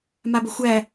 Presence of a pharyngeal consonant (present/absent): absent